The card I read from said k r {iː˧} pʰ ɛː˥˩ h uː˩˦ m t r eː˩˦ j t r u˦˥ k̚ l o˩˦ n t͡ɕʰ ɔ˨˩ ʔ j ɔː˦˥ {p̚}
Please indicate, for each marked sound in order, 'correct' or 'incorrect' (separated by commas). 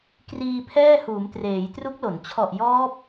correct, correct